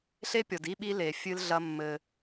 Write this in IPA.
ɬ e˦ pʲ ɔ˨ d i˦ ɓ i˦ l e˨ fʲ ɨ˦ l ɮ ɐ˦ mː ɘ˦

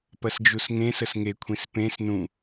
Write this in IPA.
p ɐ s d͡ʒ u s ŋ ẽ s ə s ŋ e kʷʰ ĩ s p ẽ s n ũ

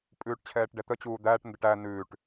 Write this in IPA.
pʼ ʉː ʈ t͡ɕʰ ɛː ʈ ɖ ɛ t̪ ə t͡ɕ uː d̪ æː ʈ n d ə ʈ æ n ʉː ʈ

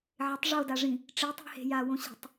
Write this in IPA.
ʕ ɪ tˤ ʐ o d a ʐ ĩ | ʈ͡ʂ i tˤ i̤ h e̤ j a w õ ɕ i̤ tˤ

